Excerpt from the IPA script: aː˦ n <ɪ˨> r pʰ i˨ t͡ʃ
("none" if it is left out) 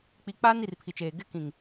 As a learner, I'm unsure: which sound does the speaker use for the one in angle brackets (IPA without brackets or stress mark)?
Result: i˨